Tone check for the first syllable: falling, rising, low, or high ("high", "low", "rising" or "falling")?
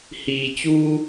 low